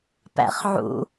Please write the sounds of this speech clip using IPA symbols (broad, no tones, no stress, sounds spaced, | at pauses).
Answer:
p æ̰ χ ʕ ṵ